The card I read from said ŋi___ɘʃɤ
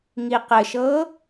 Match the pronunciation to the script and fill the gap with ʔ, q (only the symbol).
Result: q